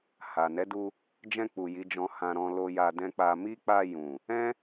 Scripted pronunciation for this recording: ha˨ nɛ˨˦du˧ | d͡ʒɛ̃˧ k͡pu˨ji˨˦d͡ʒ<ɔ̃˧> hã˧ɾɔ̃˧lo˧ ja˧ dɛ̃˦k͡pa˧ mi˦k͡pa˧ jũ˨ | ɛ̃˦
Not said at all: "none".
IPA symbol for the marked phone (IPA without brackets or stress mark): ɔ̃˧